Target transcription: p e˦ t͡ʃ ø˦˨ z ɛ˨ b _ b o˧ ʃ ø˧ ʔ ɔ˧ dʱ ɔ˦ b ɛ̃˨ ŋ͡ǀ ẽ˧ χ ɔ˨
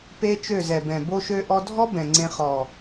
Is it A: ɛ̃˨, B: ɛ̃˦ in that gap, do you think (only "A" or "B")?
A